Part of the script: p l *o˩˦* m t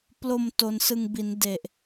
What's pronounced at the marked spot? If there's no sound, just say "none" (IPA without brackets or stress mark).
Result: o˨˩